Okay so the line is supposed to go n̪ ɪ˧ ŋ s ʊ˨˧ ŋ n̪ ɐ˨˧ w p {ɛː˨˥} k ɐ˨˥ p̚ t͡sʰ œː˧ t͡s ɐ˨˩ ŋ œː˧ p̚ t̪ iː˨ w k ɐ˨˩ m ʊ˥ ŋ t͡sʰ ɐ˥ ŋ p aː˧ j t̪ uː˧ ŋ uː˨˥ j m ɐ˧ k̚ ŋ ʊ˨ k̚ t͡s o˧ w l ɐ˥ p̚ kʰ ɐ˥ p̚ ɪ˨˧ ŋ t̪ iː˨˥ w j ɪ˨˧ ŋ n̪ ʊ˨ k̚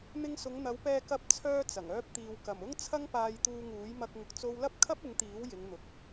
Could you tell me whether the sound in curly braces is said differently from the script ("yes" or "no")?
yes